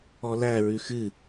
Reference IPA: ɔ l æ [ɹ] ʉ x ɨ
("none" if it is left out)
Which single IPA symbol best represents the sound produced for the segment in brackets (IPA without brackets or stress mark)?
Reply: ɹ